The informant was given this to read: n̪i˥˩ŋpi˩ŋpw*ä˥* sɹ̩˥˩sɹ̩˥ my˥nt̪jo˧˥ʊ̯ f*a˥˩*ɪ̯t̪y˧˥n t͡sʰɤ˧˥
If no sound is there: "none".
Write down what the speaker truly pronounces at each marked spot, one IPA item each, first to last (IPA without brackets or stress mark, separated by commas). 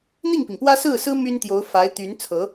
ä˥, a˧˥